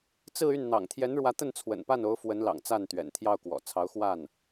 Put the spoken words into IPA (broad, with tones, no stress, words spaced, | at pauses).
t͡sɹ̩˥˧y˥˩n n̪ɑ̰˨˩ŋt̪ʰjɛ˧˥nɻwä˧˥ t̪ə˥˩n t͡sʰwə̰˨˩npa˥˩no˧˥ʊ̯ fwə˧˥nlɑ̰˨˩ŋ t͡sa˥˩nt̪ɥɛ̰˨˩nt̪ʰjɑ˥˩ʊ̯kwɔ̰˨˩ t͡sʰɑ˧˥ʊ̯xwa˥˩n